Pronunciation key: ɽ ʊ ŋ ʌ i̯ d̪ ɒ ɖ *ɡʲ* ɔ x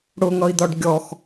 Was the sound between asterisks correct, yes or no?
yes